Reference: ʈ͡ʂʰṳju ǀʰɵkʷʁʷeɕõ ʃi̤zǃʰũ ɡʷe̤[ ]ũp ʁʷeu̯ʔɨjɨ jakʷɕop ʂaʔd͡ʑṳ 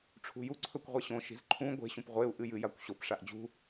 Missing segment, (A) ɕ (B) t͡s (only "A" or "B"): A